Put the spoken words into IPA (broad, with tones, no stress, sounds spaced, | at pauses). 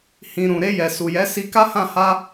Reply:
h ĩ˨ ɾ ũ˨ ɾ e˧ j ɛ˨ s u˨ j ɛ˨˦ s i˧ k a˦ h ã˦˨ h a˧